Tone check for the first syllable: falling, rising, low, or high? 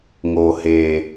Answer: low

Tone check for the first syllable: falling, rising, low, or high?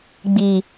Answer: low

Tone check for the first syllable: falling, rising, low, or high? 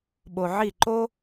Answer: low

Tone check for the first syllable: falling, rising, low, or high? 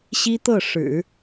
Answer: high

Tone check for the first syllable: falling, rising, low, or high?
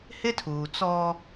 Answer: high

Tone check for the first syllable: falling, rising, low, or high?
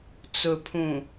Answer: low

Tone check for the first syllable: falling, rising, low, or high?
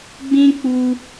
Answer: high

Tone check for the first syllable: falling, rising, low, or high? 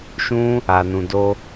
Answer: high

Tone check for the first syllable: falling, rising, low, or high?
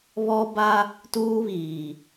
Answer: high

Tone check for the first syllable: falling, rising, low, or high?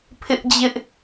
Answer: high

